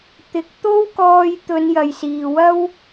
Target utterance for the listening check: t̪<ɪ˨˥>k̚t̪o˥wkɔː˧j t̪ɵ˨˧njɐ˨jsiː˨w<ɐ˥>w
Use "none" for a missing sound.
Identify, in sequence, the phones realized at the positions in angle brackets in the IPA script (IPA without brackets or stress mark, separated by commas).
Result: ɪ˨˥, ɐ˥